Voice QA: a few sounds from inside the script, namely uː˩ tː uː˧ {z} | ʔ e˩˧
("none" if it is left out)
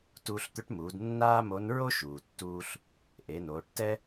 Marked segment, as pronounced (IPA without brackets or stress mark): ɬ